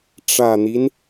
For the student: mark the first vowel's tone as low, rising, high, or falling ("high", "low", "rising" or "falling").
low